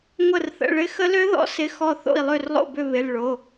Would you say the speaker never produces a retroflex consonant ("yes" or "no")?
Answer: no